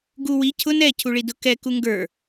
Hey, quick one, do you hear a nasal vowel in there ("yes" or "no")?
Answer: no